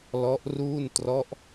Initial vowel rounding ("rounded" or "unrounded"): rounded